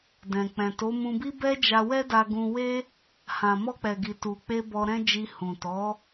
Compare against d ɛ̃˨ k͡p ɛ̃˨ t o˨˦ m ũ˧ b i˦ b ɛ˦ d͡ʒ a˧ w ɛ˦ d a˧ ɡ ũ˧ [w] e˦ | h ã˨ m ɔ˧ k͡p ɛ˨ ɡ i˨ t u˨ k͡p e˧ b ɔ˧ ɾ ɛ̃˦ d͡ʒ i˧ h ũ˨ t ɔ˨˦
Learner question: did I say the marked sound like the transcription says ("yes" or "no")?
yes